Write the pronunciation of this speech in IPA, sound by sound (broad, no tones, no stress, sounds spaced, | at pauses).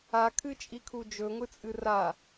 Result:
a kʰ ɨ t͡ʃʼ i kʰ u d͡ʒ ɵ ŋʷ ɨ t͡sʼ ɨ r a